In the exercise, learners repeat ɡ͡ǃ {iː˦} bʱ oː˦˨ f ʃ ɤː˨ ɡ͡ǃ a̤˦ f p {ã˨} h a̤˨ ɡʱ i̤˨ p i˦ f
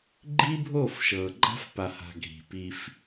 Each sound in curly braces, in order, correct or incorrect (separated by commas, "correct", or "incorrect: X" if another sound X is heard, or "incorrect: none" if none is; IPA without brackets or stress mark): correct, incorrect: a˨